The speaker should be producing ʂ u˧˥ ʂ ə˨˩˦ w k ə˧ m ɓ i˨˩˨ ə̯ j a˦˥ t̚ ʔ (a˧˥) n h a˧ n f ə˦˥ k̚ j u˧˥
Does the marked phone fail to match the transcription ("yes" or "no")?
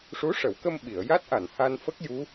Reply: yes